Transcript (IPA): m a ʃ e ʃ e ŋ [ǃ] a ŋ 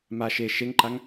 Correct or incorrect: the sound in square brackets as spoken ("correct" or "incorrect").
correct